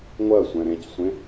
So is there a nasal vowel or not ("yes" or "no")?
yes